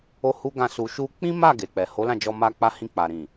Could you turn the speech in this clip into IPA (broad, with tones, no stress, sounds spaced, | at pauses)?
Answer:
o˦ h u˦ ɡ ã˦˨ s u˧ ʃ u˧ k͡p ĩ˦ m a˦˨ ɡ e˨ k͡p ɛ˨ h o˨˦ l ã˦˨ d͡ʒ ɔ˧ m a˧ k͡p a˧ h ĩ˧ k͡p a˨ ɾ ĩ˨